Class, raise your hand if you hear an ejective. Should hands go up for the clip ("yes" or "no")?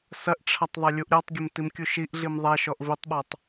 no